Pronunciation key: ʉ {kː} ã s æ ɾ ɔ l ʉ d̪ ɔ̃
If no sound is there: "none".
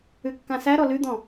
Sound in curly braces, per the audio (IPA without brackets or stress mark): kː